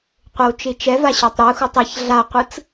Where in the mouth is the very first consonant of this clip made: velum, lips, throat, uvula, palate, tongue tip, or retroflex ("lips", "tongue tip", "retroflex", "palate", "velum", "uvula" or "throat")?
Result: uvula